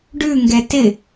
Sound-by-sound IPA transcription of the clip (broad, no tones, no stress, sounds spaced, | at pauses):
ɖ ʉ ŋ ɡ ɛ t ɪ